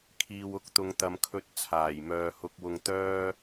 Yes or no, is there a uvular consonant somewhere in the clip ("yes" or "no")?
no